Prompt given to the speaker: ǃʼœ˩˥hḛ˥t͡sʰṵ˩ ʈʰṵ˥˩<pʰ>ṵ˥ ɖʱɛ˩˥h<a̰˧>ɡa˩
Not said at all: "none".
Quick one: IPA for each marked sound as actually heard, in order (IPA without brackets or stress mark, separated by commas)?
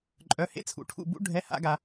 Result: b, a̰˧